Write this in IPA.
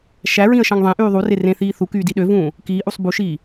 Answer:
ʃ æ ɹ ĩ ə̯ ʃ ɑ̃ ŋ ðˤ ẽ ʔ yː ðˤ u r e r ẽ θ iː θ u k yː d i ɗ ø v ũː | k iː ʔ u sˤ b u ʃ iː

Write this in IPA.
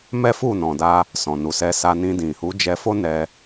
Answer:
m ɛ˦ f u˦˨ n ɔ̃˨ d a˧ | s ɔ̃˨ n u˨ s ɛ˧ s a˧ n ĩ˧ d ĩ˨ h u˨˦ d͡ʒ ɛ˧ f o˦ n ɛ˧

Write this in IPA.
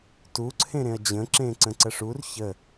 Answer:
t u ǀʰ ẽ ɾ ẽ ɐ̯ d͡ʑ ə̃ ǁ ẽ ǀ ə̃ ǀ ə ʂ u r ç ə

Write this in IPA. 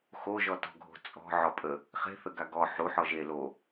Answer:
x o ʒ ɔ t ɔ̤ ɡʱ o̤ t͡sʼ ɔ̤ ʕ ɔ pʼ ə | χ e̤ θ ə ɡ a ɡ ɔ ħ u ħ ɔ ʒ e l o

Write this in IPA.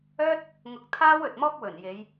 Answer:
œː˥ t̚ | ŋ ʊ˧ k̚ t̪ʰ aː˥ w ɵ˨ t̚ m ɔː˥ k̚ w ɵ˨˩ n j e˨˧ j

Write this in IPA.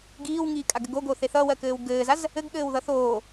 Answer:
ɡ iː w ŋ iː kʼ a ɡ ɘ ɡ o ɡ o θ e θ ʌ w ɜ k ɘː w ɡ ɘː z a z | ɘ ɡ ɠ ɘː w ð ʌ θ oː

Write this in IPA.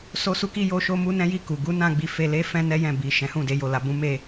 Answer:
s o˦ s u˦ k i˦ j o˦ ʃ o˦ m u˦ n ɛ̃˦ j i˦˨ k u˨ ɡ u˨˦ n ã˧ ɡ͡b i˨ f e˧ l e˦ f ɛ̃˦ n ɛ˦ j ɛ̃˦˨ b i˨ ʃ ɛ̃˨˦ h ũ˦˨ d e˨˦ j o˦˨ l a˨ b ũ˨˦ m e˦˨

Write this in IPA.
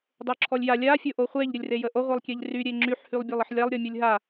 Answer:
dˤ o ǁʰ ɔ lʲ j a lʲ a fʲ o ʔ o χʷ e ʎ ɾʲ ə lʲ r e j ə ʔ o ʁʷ e lˠ kʲ e ʎ r y ɾʲ e ŋ͡ǁ y ħ h y lˠ bʲ a lˠ ə ħ lʲ a lˠ ɾʲ ɔ mʲ o lʲ ɦ a

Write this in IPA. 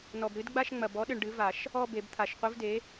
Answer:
n ɔ˨ b ɾ ɨ˨˥ d ɡ͡b a˥˧ ʃ ŋ͡m ɐ˨ b ɔ˨˥ ɗ ɨ˨ ɳ ɖ ɨ˨˥ v a˨˩˦ ʃ | ɔ˥˧ b e˨˩˦ b t̪ʰ a˨˩˦ ʃ qʷ ɨ˨˥ v d e˨˥

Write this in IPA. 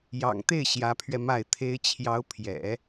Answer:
j ɑ̰˨˩ ŋ t̪ e˥˩ ɪ̯ ɕ j ä˧˥ pʰ ɥ ɛ˧ m a˥˩ ɪ̯ t̪ʰ e˥ ɪ̯ t͡ɕʰ j ɑ˧˥ ʊ̯ pʰ j ɛ̰˨˩˦

